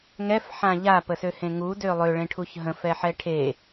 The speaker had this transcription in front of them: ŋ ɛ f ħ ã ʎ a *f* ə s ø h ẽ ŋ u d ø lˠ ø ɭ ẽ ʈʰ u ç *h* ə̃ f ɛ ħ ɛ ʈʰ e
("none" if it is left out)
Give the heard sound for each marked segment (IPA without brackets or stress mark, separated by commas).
p, ɦ